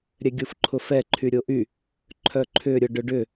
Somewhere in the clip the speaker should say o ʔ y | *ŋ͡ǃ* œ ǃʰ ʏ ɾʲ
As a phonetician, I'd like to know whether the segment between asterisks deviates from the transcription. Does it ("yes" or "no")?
yes